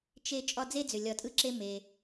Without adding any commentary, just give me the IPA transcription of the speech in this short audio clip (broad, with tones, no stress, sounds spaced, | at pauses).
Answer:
t͡ʃ e˦ t͡ʃʼ ɒ˦ d͡z e˥ d͡z ʏ˩ lʲ ɒ˨ tʼ ɯ˦ ǁ e˦ m e˩